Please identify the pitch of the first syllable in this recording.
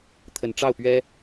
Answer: low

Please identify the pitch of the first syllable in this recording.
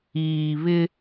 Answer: low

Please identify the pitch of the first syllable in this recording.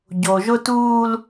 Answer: low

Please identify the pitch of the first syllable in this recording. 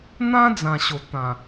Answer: high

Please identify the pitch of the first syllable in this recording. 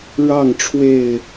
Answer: falling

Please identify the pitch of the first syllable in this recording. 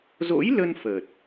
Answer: rising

